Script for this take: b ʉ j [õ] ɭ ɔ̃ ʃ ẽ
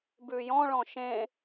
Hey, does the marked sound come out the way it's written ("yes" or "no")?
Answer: no